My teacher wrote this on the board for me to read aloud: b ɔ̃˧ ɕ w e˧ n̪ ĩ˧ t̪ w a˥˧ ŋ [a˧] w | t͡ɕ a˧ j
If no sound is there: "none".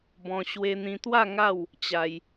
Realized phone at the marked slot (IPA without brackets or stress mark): a˥˧